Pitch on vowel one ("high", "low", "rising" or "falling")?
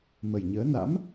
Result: low